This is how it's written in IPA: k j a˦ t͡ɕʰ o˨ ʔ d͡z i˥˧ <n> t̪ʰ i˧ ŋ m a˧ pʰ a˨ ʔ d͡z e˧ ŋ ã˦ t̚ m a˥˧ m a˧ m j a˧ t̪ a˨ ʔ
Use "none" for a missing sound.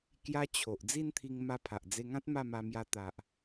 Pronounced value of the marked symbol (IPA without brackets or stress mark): n